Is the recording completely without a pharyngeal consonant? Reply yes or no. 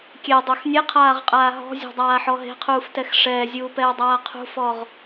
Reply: no